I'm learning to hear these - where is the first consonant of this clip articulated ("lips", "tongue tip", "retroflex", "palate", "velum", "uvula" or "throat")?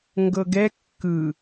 velum